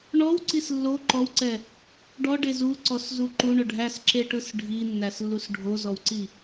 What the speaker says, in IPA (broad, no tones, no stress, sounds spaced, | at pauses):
ɳ ɔ w ǀ i s lː o ǃ ɔ w ǀ ɛ | ɖ ɔ ɖ e z u ǀ ɔ s z u ǃ u ɳ ʊ ɖʱ æ s ǁ e ʈ ɯ s ɖʱ i nː æ s lː u s ɖʱ o z ɔ w ǀ i